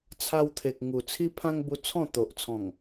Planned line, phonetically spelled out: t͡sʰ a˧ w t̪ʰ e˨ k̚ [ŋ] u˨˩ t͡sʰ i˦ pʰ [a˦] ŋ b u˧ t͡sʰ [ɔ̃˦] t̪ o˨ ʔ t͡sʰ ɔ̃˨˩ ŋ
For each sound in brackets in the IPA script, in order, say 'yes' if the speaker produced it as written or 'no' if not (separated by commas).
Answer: yes, no, no